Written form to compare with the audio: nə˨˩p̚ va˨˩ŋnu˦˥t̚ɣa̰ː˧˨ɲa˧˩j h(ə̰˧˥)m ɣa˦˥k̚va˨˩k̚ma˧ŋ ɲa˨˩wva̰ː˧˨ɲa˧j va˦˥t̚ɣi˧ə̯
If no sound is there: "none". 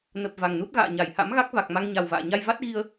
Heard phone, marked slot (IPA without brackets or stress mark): a̰˧˥